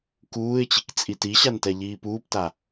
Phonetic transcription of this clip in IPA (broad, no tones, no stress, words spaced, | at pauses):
kuːɪ̯t͡ɕikt͡sʼi tiɕantɛ ʎiːpuːpta